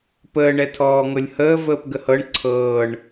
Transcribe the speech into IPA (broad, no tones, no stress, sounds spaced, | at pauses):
p əː ɳ ɛ tʰ ɔː ŋ ɤ lʲ h əː v əː p ɡ ə h ɤ ɳ ǀʰ ɤː ɳ